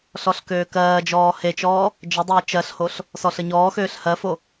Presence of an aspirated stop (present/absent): absent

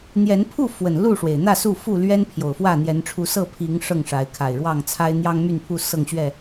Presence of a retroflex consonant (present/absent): present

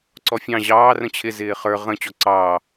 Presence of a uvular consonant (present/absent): present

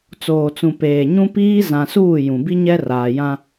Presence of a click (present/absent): absent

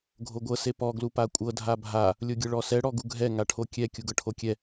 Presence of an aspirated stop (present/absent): present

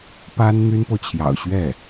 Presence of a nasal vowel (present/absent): absent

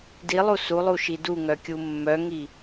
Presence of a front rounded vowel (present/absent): present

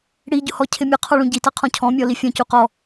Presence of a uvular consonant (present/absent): present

